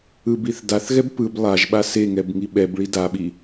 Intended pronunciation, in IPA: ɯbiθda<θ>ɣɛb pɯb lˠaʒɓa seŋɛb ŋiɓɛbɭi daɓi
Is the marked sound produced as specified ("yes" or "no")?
yes